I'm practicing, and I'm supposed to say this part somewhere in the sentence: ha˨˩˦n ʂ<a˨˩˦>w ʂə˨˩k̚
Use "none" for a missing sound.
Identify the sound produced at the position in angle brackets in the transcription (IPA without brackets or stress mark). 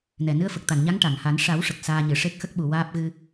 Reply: a˨˩˦